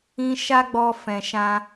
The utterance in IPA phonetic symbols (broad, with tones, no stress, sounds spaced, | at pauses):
ĩ˦ ʃ a˦ ɡ͡b ɔ˧ f ɛ̃˨ ʃ ã˧